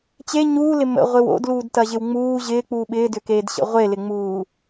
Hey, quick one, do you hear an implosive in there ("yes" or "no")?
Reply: yes